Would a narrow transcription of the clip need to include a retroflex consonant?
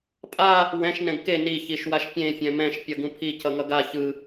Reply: no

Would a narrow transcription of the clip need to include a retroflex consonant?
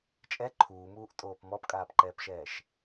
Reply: no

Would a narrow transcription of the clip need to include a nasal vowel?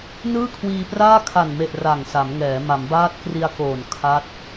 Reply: no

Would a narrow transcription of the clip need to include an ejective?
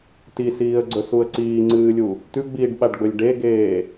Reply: no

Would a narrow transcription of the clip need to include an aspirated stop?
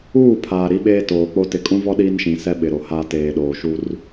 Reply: yes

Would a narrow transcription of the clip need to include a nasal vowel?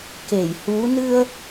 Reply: no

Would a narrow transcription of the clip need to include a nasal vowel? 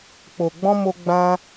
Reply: yes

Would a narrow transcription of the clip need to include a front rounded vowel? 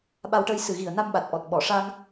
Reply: no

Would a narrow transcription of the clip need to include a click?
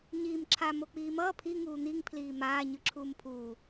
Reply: yes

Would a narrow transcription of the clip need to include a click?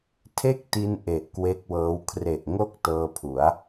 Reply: no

